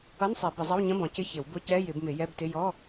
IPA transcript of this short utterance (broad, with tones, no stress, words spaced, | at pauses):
ʌ˧˥˧nsˤɛ˨˩˦ bɪ˨˩˦zˤʌ˧˥˧wɲə̃˧˥˧ bɔ̃˨˩˦cɪ˧˥˧ çɪ˨˩˦w bʊ˧˥˧cɛ˧˥˧jɪ˨˩˦bmɪ˨˩˦ jɛ˧˥˧btɪ˧˥˧ jɔ˧˥˧